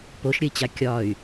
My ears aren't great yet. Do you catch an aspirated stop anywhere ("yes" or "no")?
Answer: no